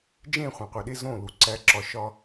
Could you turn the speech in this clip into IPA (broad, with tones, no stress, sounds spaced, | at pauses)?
d͡ʒ ẽ˦˨ χʷ ẽ˨ qʷ i˨ ɗ e˦ z õ˦˨ l u˨ ǀ æ˦ ǁ ɒ˦ ʃ ɒ˦